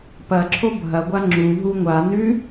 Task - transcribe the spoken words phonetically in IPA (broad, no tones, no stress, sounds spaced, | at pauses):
p ɐ ǁʰ o bʱ ɐ ɡʷ a ŋ͡ǁ u ɦ u ŋʷ a n ʉ